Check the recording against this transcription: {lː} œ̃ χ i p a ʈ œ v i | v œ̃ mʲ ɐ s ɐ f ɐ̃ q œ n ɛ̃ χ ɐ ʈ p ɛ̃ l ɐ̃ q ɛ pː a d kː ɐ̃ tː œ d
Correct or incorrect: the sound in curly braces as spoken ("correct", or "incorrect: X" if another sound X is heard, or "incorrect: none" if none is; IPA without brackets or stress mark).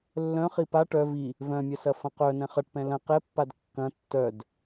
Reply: correct